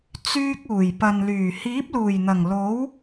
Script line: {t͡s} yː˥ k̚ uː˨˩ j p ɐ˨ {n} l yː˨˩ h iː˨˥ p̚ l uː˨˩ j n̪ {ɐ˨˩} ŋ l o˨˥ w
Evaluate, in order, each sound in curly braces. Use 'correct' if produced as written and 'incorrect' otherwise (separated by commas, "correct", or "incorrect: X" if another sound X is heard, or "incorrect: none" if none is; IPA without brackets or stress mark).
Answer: correct, correct, correct